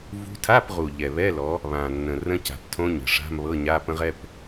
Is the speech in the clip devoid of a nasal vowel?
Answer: no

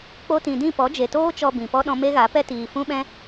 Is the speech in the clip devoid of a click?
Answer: yes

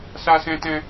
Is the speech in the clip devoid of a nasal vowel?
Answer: no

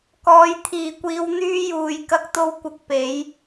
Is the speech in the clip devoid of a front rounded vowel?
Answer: no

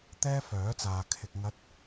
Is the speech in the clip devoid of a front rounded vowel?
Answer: no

